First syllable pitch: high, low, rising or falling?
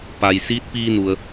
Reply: low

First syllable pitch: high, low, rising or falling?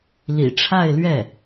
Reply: low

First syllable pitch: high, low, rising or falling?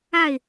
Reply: falling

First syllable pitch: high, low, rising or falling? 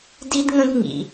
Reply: high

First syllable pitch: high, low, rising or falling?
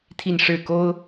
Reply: falling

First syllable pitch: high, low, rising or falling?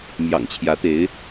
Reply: low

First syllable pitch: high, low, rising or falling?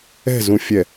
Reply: falling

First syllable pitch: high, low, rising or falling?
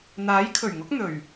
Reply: rising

